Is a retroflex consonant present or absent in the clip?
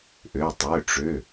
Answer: present